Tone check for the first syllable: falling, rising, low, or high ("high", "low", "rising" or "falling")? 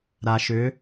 low